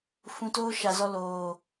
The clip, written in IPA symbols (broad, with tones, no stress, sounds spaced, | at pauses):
f ũ˧ t oː˦ ʃ a˨ z ɔ˧ l oː˨